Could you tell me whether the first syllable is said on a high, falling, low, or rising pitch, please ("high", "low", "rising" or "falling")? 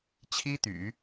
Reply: high